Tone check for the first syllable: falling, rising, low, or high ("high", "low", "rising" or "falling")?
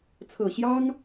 low